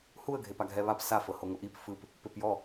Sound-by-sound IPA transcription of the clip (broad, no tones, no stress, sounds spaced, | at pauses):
h u ə̯ ɡʱ e p a ɡʱ ɛ β a p s a f ɤ h o ŋ o ʔ i p f ɯ p | p e p j ɔ